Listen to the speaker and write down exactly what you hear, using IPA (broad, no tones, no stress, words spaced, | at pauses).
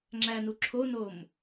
ŋ͡ǁænuǁʰonom